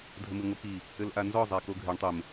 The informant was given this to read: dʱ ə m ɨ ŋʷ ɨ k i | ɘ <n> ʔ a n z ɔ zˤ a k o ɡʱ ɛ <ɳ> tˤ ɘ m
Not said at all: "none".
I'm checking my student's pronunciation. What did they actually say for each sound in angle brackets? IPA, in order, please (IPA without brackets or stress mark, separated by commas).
l, ɳ